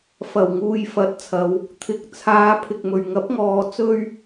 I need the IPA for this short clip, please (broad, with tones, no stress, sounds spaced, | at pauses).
f ɐ˨˩ w ŋ uː˨ j f ɐ˨˥ t̚ t͡sʰ ɐ˨˧ w | t̪ʰ ɪ˨ k̚ t͡sʰ aː˨˧ pʰ ɪ˨ k̚ m ɵ˨ ɥ ŋ ɐ˨˥ p̚ ŋ ɔː˨˧ t͡s ɵ˥ ɥ